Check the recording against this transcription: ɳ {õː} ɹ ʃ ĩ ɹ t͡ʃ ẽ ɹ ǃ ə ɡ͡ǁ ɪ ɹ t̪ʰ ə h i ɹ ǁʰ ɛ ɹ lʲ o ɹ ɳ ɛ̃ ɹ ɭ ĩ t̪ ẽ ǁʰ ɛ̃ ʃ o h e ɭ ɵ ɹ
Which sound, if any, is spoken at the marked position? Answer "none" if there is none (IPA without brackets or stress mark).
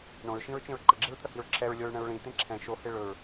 õ